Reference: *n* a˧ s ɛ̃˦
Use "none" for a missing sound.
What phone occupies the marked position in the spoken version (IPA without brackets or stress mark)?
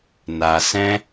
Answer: n